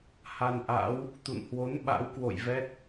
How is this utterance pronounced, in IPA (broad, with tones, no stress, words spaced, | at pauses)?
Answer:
ha˧nʔa̰˧˥w | t̪ṵ˧˨nhwo˨˦n ɓa̰˧˥wkwo̰˧˨j vɛ˦˥t̚